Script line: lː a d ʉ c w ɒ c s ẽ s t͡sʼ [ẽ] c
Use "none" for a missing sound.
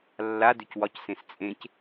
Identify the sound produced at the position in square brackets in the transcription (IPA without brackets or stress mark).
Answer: ẽ